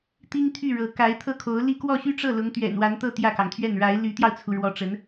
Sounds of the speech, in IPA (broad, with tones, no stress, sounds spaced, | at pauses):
t̪ i˥ ŋ t̪ʰ y˥˩ ɻ ɤ˧˥ k a˧˥ ɪ̯ t̪ʰ ɤ˥˩ kʰ o˧˥ ʊ̯ l i˥˧ k w ɔ˥˩ ɕ y˥ ʈ͡ʂ ɤ˥˩ l ʊ˧˥ ŋ t̪ ɥ ɛ̰˨˩ n w a˧˥ n t̪ ɤ˥˧ t̪ j ä˥˩ k ɑ˩ ŋ t̪ʰ ɥ ɛ˥˩ n ɻ a˧˥ ɪ̯ l y˧˥ t̪ j ɑ˧ ʊ̯ t͡sʰ u˩ ɻ w ɔ˧˥ ʈ͡ʂ ə˧˥ n